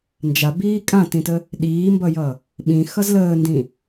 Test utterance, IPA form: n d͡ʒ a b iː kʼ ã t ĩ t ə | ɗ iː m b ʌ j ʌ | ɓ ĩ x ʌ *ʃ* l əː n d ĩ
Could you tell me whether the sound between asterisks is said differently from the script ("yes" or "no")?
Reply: yes